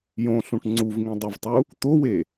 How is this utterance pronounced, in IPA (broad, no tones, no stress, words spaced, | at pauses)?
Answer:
jõɬũʈ ŋ͡ǀuvŋĩdˤɛvtˤu | t̪owe